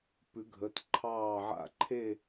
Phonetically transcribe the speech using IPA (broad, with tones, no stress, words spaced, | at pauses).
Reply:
pʉ˨˩˦ɡʱə˩˧˩t ǃʰɑː˥˨ʕa̰˥˨ ǃʰe˥˨